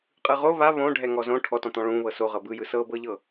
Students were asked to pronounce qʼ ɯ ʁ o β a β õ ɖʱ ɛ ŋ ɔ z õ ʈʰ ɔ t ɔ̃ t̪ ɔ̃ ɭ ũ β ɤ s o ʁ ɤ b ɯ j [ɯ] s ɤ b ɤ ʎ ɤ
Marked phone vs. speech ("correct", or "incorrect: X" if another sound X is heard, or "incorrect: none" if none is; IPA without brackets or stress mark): correct